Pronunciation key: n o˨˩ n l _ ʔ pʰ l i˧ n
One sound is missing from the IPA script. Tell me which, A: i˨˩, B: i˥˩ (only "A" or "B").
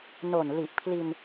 A